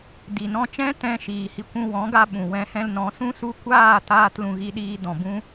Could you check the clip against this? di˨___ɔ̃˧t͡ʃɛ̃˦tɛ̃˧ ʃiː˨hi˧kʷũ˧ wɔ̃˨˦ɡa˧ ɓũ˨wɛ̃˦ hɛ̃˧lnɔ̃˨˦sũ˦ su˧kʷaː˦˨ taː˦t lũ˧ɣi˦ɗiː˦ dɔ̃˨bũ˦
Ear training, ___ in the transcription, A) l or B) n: B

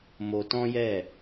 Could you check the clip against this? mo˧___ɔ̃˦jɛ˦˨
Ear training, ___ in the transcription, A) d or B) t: B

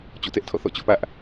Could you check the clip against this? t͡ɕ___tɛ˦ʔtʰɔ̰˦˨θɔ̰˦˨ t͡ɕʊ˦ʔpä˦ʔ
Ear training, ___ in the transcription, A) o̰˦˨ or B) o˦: A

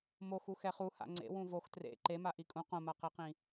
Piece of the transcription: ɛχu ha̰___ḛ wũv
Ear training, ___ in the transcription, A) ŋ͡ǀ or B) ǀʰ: A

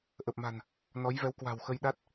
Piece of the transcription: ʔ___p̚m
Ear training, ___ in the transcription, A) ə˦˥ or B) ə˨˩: B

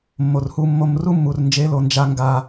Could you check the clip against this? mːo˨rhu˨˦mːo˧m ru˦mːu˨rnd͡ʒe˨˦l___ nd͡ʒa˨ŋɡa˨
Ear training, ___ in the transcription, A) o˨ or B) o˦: A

